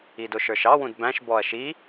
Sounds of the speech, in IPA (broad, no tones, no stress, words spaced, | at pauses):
idʊʃə˞ʃɑ wũdbæ̃ʃ bɔɐ̯ʃi